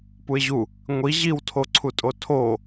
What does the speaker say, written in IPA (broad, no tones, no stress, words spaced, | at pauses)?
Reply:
puɪ̯ʑu | ŋʷi ʑiwtʰoǀʰutʼo tʰo